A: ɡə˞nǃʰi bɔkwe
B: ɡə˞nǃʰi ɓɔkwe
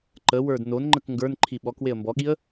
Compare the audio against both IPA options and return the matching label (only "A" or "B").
B